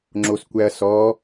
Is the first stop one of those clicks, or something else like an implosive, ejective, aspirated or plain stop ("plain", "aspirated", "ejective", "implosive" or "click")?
click